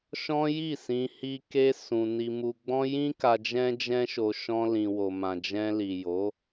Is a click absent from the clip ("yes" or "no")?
yes